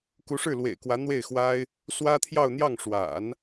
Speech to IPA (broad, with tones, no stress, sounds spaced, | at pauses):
k u˧˥ ʂ ɻ̩˥˩ l w ḛ˨˩ ɪ̯ k w ä˧˥ n̪ w e˥˩ ɪ̯ x w a˥ ɪ̯ | s w ä˥ t̪ʰ j ɑ˥˧ ʊ̯ n̪ j ɑ˥˩ ŋ ʂ w a̰˨˩˦ n